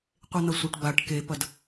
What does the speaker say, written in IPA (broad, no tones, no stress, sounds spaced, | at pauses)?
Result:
qʷ e n̪ ɐ sʷ ɐ ʈ b a ʈ k e p ɐ d